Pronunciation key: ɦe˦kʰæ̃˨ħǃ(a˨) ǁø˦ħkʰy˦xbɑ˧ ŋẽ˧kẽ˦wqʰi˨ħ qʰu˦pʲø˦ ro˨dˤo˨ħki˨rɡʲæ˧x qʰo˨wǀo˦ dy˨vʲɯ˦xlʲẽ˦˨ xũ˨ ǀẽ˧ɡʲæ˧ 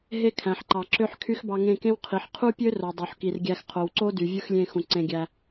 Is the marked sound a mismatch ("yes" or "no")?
yes